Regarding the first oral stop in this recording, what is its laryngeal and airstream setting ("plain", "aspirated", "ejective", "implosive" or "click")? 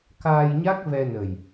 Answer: plain